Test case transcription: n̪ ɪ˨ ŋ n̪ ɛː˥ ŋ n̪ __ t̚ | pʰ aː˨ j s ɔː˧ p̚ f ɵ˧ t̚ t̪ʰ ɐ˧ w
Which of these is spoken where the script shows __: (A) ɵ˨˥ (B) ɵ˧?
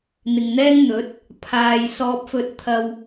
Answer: A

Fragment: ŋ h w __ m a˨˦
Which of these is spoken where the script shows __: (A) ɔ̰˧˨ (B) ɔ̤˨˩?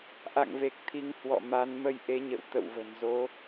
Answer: A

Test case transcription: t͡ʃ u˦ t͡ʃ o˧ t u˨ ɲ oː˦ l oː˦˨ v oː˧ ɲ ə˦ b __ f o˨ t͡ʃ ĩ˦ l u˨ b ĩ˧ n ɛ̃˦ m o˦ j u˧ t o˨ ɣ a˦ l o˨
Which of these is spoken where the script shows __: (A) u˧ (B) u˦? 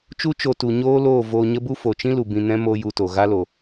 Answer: B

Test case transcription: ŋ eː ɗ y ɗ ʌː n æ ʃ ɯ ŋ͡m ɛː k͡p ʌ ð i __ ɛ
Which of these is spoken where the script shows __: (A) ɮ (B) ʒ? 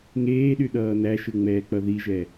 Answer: B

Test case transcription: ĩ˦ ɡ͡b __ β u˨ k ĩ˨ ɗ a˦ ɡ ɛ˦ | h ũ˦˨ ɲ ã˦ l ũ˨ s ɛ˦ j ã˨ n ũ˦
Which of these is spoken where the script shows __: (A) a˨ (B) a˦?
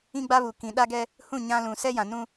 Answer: B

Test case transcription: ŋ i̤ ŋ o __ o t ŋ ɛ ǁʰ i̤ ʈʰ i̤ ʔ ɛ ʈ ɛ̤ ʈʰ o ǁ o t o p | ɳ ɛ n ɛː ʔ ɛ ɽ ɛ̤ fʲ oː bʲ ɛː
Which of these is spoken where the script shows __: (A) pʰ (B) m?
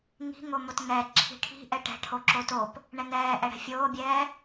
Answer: B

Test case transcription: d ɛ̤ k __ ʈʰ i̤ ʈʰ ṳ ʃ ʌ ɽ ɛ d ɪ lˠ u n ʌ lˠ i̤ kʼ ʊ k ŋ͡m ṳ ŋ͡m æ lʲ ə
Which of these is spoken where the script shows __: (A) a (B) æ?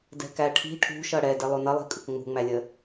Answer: B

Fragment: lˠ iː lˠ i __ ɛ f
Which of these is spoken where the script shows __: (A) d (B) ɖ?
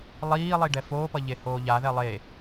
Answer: B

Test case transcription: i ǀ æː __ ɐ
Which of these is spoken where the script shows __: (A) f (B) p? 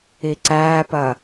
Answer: B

